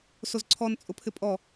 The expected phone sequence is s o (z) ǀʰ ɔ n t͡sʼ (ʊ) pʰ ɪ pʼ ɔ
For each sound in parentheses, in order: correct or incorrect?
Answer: correct, correct

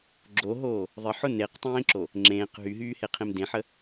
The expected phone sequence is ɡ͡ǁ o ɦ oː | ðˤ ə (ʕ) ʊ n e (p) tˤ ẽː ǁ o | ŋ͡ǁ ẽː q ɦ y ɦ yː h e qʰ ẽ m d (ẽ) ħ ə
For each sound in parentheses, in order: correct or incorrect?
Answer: incorrect: ħ, incorrect: q, correct

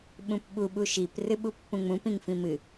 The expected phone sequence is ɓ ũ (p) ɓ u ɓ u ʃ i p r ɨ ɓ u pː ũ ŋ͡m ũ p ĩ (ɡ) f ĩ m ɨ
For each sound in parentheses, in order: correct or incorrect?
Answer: correct, incorrect: ŋ

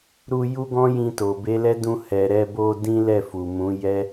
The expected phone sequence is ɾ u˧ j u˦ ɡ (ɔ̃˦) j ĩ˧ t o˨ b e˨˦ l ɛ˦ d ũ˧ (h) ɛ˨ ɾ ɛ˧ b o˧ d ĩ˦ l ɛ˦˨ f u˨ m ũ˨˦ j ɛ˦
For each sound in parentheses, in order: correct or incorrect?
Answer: correct, correct

